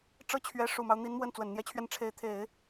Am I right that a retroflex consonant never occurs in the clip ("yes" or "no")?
no